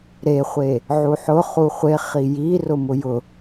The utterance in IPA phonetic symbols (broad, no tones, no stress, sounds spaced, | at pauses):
ɾ e χʷ e | ʕ u ħ ʊ χ u χʷ e χ i j i r ʊ m ʊ j ʊ